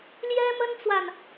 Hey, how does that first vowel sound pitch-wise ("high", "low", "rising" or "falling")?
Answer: high